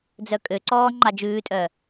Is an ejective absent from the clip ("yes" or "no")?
no